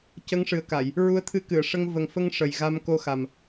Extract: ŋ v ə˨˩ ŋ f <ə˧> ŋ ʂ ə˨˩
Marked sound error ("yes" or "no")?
no